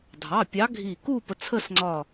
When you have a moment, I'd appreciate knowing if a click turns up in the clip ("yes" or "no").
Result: yes